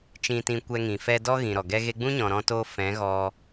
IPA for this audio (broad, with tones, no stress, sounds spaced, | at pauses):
t͡ʃ ĩ˧ t ĩ˧ kʷ ɛ˧ ŋ ĩ˨ f ɛ˧ d ɔ˦ ɣ ĩ˨ ɾ ɔ˨ ɡ ɛ˦ ɣ e˧ ɡ͡b ũ˦ ɲ ɔ̃˨ ɾ ɔ̃˦ t o˦ f ɛ̃˨˦ ɣ ɔ˧